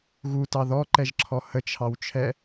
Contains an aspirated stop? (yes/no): yes